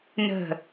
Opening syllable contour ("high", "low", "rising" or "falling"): low